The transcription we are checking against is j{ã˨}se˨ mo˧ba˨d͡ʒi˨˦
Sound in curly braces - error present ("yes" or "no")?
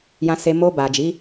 no